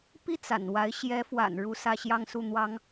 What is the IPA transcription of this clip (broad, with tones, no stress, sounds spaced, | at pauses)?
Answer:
p i˥˩ t͡s a̰˨˩ n w a˧˥ ɪ̯ ɕ j ɛ˧˥ f w a̰˨˩ n ɻ u˥ s ä˥˧ ɕ j ɑ˥˧ ŋ s u˥˩ n̪ w ɑ˥ ŋ